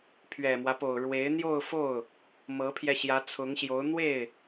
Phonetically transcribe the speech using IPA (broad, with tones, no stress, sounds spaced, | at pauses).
pʰ ɥ ɛ˨˩ m w ä˦ p o˨˩ ʊ̯ ɻ w e˧˥ ɪ̯ n̪ j o˥˧ ʊ̯ f o˥˩ ʊ̯ | m ɤ˧˥ pʰ j ɛ˧ ɕ j ä˧˥ t͡sʰ ʊ˧˥ ŋ ɕ j o˧˥ ʊ̯ n̪ w e˥˩ ɪ̯